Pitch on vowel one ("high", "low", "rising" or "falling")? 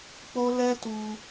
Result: high